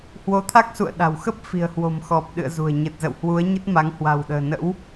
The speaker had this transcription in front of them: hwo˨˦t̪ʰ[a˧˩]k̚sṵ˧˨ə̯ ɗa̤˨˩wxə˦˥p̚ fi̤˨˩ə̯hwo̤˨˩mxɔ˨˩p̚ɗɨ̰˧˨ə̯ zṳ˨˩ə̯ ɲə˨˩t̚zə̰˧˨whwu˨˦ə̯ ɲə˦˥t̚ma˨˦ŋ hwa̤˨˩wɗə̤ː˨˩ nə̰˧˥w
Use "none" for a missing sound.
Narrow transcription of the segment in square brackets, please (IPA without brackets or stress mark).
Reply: a˦˥